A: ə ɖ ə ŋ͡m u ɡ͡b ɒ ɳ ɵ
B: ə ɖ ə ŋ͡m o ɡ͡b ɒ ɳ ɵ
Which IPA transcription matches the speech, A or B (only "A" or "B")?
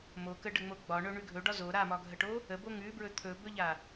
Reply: B